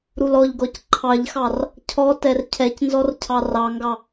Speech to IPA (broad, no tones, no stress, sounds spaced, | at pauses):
ɾ u l ɔ ʎ ɡ ɔ c ǃʰ ɑ ʎ x ɑ r | cʰ ɔ t ɛ r cʰ ɛ c n z ɔ r cʰ ɑ r ɑ ŋ ɡ ɑ